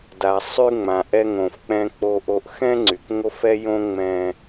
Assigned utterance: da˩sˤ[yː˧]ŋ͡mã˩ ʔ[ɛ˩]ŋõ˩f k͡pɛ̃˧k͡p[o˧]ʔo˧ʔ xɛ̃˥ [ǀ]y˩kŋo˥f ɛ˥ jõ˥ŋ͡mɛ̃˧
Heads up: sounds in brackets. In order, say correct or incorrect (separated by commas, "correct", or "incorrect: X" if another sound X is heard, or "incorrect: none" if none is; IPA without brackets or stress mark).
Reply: incorrect: y˧, incorrect: ɛ˧, correct, incorrect: ŋ͡ǀ